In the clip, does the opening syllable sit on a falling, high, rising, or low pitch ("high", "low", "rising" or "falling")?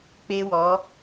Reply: high